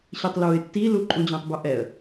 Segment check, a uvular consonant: absent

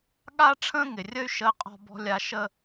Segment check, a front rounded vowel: present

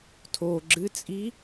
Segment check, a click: present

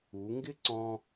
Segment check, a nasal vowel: present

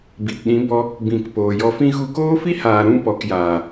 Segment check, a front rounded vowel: absent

